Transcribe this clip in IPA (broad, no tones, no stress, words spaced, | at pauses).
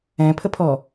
ɛ̃pʰəpʰɔ